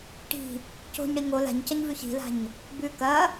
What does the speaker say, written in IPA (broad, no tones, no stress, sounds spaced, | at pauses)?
ʈ i̤ | c o̤ ɲ ɽ i ŋ o l a̤ ɲ c ɐ ɲ v ʉ ç i̤ l a̤ ɲ | b ʉ k ɐ